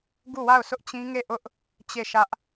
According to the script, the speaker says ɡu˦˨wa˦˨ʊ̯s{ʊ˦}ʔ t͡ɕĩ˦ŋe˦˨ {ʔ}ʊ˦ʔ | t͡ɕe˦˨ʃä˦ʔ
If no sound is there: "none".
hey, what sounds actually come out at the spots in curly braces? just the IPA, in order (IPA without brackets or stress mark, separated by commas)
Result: ʊ˦, ʔ